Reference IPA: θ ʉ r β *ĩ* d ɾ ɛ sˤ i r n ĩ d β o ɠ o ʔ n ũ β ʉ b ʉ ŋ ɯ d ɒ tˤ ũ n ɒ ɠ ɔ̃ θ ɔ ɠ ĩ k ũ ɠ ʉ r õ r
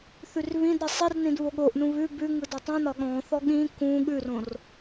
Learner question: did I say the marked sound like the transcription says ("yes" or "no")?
yes